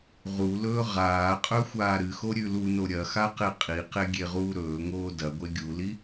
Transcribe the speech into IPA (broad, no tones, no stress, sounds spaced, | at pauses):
ʁ u l ɵː ʁ aː qʼ ɵ xʷ aː ɾ ɨ x o ɾʲ ʉ l u n o ɾʲ ɐ x a q e qʼ i q e ɡʲ e ʁ uː ɾ ɵː ŋ oː d ɐ ɡʷ e ɡʲ u l i